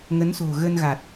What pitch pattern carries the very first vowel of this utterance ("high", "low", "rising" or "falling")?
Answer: rising